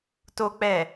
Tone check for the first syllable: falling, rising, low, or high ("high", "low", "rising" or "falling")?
low